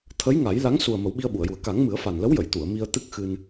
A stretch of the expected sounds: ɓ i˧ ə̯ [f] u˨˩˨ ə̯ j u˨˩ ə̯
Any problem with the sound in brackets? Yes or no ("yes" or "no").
yes